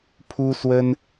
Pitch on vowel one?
high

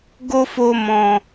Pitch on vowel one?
high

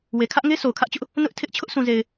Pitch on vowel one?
low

